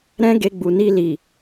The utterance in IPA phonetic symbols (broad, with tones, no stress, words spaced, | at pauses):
ɾɛ̃˦ɡe˧ɡ͡bu˨ni˧ li˨